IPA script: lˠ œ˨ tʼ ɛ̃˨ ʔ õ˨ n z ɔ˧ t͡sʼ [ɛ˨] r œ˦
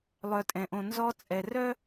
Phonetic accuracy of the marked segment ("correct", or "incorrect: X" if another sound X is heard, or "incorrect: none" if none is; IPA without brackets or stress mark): correct